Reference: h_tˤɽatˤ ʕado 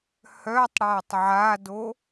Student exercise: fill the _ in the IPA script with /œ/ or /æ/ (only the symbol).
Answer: œ